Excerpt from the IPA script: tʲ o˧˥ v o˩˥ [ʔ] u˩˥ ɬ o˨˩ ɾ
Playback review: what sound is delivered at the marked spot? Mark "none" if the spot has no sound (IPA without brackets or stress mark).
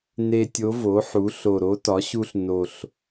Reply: ħ